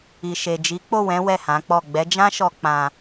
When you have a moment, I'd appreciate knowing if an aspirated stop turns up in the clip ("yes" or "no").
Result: no